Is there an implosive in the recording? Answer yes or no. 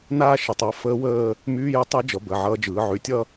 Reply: no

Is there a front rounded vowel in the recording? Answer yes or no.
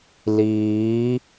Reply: no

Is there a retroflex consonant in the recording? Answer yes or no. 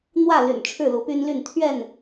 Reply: yes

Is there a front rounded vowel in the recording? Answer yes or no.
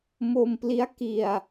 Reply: no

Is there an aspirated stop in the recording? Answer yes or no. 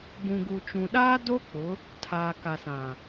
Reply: yes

